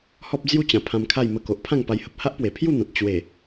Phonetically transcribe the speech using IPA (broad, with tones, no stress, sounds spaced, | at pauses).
h ɔ˦ p̚ d͡z j u˥˧ t͡ɕ ã˨˩ pʰ ã˧ m kʰ a˥˧ j m ə˧ k o˨ ʔ pʰ ã˥˧ ŋ p a˧ j h ə˨ p̚ h a˦ ʔ p w e˨˩ pʰ j u˥˧ n̪ ã˨ t̚ t͡ɕ w e˨˩